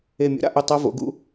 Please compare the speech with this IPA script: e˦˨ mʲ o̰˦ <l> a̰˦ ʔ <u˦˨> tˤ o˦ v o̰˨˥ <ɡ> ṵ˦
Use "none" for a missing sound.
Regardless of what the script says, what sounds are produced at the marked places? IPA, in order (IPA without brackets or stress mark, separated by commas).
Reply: ɾ, u˦˨, ɡ